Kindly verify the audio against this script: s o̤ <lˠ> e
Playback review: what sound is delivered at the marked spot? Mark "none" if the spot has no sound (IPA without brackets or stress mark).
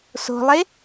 lˠ